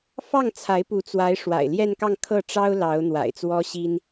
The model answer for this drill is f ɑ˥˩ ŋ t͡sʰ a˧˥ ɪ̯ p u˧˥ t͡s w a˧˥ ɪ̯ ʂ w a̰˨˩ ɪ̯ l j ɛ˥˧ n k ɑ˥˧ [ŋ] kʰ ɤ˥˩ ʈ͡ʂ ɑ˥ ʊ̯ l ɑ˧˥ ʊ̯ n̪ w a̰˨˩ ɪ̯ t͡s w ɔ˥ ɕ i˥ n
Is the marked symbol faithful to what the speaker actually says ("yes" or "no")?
yes